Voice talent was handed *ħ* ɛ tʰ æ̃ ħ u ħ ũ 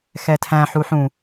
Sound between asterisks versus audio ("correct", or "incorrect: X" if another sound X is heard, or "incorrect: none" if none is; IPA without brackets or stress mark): incorrect: x